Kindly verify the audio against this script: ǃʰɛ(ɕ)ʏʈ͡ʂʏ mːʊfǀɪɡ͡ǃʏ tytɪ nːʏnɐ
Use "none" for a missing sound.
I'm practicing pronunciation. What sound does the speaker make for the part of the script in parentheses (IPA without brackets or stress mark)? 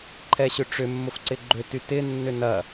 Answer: ɕ